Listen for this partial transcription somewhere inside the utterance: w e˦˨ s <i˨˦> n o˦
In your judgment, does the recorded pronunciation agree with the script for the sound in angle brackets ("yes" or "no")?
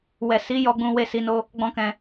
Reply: yes